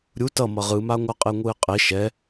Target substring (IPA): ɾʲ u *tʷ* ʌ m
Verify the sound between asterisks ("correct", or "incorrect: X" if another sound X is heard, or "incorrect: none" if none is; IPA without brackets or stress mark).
incorrect: t